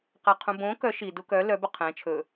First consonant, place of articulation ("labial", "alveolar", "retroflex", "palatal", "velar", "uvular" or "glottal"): uvular